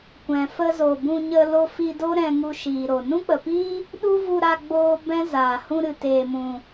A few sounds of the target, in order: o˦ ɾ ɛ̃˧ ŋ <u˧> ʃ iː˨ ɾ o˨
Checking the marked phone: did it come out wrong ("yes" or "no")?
no